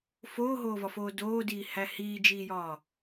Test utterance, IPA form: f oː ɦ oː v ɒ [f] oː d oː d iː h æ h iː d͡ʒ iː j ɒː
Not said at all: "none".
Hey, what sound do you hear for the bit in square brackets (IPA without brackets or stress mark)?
f